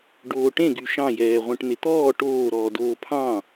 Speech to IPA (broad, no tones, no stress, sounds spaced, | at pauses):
ɖ oː ʈ ẽ ɡ y ʃ ɑ̃ j ɛː ʁʷ ẽ ʈ n̪ e t̪ ɔː ʈ oː ɾ ɔː d oː pʰ ɑ̃